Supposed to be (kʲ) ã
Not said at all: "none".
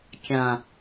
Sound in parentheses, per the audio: kʲ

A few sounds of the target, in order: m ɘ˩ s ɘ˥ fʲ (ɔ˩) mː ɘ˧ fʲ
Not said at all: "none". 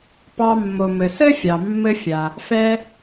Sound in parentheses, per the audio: ɑ˩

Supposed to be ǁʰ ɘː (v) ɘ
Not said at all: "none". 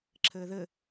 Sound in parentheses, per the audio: ð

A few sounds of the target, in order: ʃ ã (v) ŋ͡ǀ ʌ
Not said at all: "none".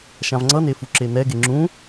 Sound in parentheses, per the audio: v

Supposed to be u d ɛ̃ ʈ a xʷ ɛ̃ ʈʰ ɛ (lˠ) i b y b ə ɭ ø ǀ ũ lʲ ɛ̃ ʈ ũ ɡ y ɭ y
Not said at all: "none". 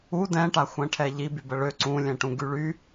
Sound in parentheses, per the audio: ʎ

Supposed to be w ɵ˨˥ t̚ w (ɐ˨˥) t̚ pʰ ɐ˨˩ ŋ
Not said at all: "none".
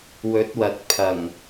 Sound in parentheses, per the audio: ɐ˨˥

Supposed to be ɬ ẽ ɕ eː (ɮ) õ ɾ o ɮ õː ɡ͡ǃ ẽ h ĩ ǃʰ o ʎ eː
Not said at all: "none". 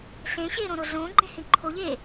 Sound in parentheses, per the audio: ɾ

